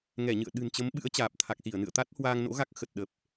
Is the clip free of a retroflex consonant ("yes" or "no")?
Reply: yes